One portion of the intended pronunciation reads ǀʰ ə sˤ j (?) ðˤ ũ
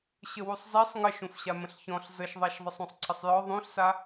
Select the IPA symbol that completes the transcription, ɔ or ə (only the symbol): ɔ